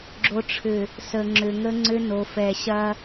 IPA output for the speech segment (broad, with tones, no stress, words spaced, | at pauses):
ɡ͡ǁo˨ʈ͡ʂʰʏ˨ | sə˨ŋ͡ǁʏ˨ŋə˦ŋ͡ǀʏ˦ no˨fɛ˨ɕɐ˦